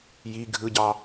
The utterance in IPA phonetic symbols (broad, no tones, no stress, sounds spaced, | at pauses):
j i ɡʱ ɯ ɟ ɑ